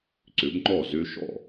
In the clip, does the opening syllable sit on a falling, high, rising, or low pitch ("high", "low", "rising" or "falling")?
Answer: rising